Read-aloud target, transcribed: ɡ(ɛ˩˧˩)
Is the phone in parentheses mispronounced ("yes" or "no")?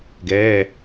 no